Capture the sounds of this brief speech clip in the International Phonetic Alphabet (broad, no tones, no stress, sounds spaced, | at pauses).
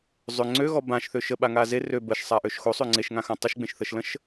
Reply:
zˤ ø ŋ͡ǀ ø ɣ ɔ b ã ʃ θ ø ʃ ə ɓ a ŋ a z e r ø b ə ʃ sˤ a ʔ ø ʃ x o sˤ ø ŋ͡ǀ e ʃ ŋ ã x ã tˤ ə ʃ ɡ͡b ẽ ʃ θ ə ʃ l ə̃ ʃ